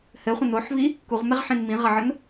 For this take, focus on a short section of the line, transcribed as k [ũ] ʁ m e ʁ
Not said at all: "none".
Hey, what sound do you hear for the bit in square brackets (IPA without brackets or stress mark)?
u